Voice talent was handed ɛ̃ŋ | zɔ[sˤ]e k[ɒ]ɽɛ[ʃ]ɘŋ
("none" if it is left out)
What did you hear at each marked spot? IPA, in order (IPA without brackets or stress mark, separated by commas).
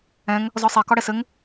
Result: sˤ, ɒ, s